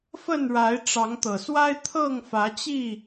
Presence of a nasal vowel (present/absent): absent